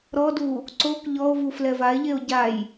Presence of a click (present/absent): present